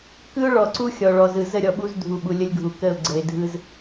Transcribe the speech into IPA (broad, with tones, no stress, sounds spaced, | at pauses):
k ɯ˦ ʊ̯ ɭ ɔ˨ ǀ u˦ xʲ ɔ˨ ɭ ɔ˨ z ɯ˨ z ə˦˨ ɾʲ ɔ˨ ɓ u˦ z dʱ u˨ ɓ u˨ lʲ ə˦ lʲ ɡʱ u˨ k ə˦˨ ʊ̯ ɡ͡ǀ ə˨ ɪ̯ dʱ ɯ˦ z